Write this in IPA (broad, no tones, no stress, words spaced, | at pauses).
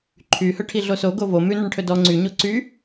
ǃʰy hɵʈʰiɮoso ɡovo mʉnɵɳʈʰɵ dɔ ŋ͡ǀyɲo ǀy